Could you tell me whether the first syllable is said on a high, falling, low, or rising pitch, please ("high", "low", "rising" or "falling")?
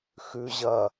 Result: low